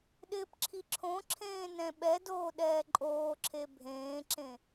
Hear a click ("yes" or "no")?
yes